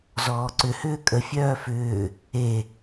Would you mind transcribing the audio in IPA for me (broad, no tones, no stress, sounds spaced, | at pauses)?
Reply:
z ɔː ǀ ʏ h ʏː kʼ ə fʲ œː f ʏː | e